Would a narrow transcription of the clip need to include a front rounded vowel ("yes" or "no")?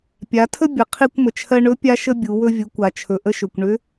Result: yes